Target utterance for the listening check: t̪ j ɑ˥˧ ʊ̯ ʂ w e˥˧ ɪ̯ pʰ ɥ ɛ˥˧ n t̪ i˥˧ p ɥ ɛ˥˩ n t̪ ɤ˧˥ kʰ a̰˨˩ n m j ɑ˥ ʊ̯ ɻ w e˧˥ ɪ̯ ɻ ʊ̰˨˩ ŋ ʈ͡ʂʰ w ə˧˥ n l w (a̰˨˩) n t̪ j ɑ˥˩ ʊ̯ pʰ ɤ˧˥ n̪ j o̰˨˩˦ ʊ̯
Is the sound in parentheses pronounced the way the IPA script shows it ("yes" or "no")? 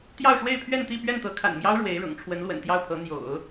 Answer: no